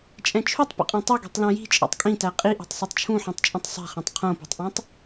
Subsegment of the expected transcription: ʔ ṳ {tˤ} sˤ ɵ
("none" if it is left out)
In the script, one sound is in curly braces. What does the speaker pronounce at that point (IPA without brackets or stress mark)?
tˤ